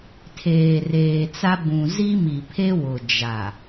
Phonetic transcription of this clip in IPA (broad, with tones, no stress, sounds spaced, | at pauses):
tʰ eː˨ r eː˨ t͡s a˦ b ũ˨ z i˦ m i˨ pʰ e˦ w ʊ˨ d͡ʒ a˨